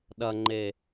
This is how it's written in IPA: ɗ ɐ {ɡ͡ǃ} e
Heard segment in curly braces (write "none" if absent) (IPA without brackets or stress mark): ŋ͡ǃ